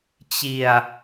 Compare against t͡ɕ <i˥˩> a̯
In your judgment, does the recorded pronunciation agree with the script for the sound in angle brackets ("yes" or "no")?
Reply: no